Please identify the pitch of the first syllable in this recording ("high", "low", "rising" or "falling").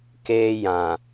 high